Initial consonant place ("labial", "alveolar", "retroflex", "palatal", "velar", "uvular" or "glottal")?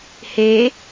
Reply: glottal